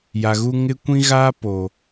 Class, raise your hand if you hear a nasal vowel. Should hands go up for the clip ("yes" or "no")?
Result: yes